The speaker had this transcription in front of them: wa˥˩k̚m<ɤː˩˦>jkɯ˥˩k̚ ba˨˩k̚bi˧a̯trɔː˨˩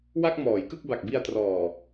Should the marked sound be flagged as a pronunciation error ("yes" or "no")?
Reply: yes